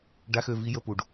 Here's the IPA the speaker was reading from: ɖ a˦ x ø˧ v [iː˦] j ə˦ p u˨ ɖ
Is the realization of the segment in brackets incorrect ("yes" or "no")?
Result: yes